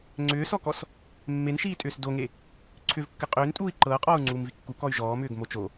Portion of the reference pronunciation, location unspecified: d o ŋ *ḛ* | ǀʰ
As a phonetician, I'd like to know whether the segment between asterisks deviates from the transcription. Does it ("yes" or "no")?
yes